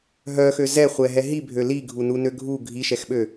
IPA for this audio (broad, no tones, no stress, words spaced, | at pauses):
ɦœxø zɛχʷɛɦɛ ɦibʱø liɡʱununø ɡʱu ɡʱiʃɛxɓø